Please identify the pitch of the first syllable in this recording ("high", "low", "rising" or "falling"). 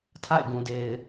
falling